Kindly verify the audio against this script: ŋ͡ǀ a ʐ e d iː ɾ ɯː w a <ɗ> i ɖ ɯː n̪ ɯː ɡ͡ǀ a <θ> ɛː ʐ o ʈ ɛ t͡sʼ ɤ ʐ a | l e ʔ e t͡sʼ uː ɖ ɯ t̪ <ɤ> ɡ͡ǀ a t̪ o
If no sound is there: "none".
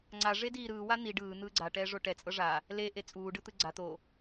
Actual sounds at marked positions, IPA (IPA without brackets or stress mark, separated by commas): n̪, ʈ, ɯ